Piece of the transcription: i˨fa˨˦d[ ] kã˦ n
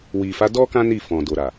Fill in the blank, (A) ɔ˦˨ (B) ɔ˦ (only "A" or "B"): B